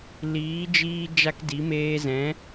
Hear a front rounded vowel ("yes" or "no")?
no